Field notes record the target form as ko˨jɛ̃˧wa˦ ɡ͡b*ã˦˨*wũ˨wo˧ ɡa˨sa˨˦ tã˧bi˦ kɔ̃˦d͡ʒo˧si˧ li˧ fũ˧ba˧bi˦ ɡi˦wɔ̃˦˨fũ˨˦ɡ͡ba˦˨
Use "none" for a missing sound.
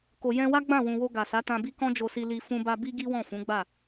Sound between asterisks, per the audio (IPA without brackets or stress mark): ã˦˨